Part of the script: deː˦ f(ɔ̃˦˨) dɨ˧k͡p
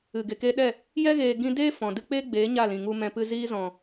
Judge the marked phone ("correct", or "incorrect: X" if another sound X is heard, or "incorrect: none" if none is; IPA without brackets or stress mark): incorrect: ɔ̃˨